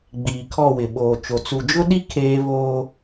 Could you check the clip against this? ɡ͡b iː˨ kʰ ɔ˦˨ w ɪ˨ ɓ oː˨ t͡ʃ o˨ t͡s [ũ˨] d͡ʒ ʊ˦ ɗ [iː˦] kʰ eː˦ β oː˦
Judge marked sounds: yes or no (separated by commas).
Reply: no, no